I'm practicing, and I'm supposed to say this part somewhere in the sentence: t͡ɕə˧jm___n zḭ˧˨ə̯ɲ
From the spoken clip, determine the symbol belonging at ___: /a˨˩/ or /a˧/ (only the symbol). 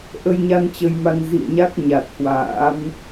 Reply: a˧